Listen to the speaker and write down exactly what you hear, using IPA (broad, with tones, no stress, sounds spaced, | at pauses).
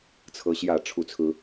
t͡sʰ ɤ˦ ɕ j ä˥˨ ʈ͡ʂʰ u˥˨ t͡sʰ ɹ̩˦